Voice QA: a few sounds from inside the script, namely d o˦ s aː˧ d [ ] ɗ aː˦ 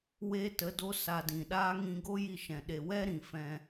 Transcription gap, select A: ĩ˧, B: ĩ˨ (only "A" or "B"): B